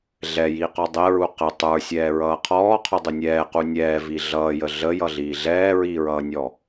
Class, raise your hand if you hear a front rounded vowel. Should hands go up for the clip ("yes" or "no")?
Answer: no